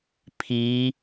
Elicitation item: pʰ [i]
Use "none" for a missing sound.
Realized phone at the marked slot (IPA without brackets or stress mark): i